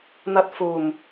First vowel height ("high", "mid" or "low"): low